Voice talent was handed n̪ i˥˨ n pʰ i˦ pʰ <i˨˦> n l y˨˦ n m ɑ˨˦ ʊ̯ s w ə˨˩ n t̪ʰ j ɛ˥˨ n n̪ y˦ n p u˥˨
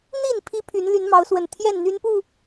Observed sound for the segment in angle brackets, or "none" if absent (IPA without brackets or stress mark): y˨˦